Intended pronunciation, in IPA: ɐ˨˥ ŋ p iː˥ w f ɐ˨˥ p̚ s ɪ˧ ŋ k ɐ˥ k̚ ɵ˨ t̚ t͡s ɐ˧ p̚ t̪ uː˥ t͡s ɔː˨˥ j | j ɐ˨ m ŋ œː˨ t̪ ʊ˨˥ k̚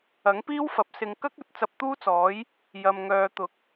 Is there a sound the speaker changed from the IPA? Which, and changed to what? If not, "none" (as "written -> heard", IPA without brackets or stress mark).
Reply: none